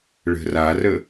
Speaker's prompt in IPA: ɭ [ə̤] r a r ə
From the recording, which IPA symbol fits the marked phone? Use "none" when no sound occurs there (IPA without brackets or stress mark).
ə̤